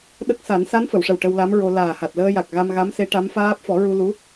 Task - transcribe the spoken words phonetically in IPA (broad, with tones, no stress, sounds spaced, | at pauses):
ɗ ə˦˥ k̚ s a˨˩˦ n s a˧˥ n f ə˨˩˨ w ʂ ə˨˩ w ʈ ə˧ w l a˧˥ m ɹ o˧ l aː˨˩ h a˨˩ t̚ l əː˧ j a˨˩ k̚ ɣ a˧ m ɣ a˧˥ m s e˧˥ ʈ a˧˥ m f aː˦˥ p̚ f ɔ˨˩˦ ɹ u˧ l u˧˥